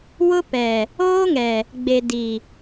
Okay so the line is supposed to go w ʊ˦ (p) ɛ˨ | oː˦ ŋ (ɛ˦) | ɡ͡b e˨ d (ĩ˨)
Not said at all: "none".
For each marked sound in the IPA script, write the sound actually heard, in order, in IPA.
p, ɛ˨, i˨

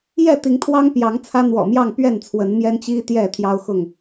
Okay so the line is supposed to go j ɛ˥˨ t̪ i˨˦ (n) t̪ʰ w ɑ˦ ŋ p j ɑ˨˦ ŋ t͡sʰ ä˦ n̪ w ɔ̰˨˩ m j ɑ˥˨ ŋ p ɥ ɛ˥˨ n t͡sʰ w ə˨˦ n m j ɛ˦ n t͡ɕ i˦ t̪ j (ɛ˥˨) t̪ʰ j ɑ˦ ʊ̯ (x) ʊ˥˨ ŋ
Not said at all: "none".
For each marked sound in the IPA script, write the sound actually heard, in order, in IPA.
ŋ, ɛ˥˨, x

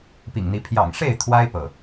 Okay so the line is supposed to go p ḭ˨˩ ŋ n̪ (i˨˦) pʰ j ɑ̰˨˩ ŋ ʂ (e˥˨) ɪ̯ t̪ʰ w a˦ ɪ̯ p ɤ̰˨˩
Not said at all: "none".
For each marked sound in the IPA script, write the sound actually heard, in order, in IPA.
i˨˦, e˥˨

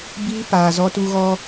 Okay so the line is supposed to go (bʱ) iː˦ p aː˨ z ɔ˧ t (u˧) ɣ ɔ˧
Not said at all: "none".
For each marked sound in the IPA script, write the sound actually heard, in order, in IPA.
b, u˧

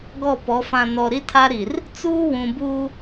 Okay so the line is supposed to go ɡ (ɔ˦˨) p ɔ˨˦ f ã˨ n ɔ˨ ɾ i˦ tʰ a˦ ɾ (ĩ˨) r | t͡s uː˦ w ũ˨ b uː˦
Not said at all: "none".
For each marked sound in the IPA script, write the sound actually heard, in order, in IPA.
ɔ˦˨, i˨

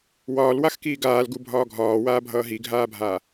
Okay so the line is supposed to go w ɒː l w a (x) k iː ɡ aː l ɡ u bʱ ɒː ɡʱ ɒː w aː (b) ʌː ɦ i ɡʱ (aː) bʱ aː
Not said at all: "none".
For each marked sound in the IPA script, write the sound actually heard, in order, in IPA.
x, bʱ, aː

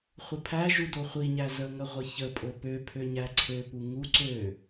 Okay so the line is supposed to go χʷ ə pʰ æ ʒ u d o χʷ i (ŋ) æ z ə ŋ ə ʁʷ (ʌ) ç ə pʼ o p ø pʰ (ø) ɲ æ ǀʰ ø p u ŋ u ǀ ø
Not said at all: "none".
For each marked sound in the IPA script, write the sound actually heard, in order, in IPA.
ɲ, ə, ø

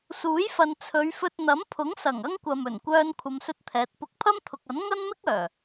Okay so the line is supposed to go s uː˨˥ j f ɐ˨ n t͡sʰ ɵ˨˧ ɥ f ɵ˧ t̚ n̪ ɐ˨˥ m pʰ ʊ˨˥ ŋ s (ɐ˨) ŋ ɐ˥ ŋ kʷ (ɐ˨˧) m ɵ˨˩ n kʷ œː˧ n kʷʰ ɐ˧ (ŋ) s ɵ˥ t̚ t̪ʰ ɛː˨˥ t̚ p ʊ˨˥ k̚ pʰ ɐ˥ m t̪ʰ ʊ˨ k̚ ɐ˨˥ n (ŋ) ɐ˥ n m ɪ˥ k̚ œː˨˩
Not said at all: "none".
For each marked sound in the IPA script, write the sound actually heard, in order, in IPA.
ɐ˨˩, ɐ˨, m, ŋ

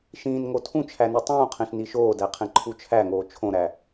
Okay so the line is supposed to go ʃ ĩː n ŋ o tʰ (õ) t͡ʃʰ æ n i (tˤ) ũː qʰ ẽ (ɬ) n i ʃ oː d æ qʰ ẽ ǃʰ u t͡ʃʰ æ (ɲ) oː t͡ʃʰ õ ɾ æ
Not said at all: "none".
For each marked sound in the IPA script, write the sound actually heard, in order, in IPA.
ũ, tˤ, ɬ, ŋ

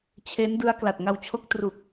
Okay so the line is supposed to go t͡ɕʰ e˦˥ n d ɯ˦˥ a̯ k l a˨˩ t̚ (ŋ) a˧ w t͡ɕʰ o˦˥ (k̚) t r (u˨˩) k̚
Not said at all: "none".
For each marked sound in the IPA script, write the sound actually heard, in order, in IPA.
ŋ, k̚, u˨˩

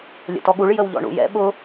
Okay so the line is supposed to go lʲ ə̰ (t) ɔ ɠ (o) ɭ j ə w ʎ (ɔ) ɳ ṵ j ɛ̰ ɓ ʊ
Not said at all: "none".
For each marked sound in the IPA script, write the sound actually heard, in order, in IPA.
t, u, ɔ̰

